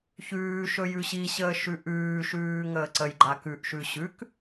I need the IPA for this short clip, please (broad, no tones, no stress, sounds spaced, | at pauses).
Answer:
ç ʉː ʃ ɵ j ʉ ɕ i ɕ əː ʃ ʉ ʔ ʉː ʃ ʉː ŋ əː ǀ ə j ɡ͡ǃ a k ʉ ʔ ʃ ʉ ɕ ʉ k